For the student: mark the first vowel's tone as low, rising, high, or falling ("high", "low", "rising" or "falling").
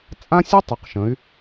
high